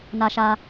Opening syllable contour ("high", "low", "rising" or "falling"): high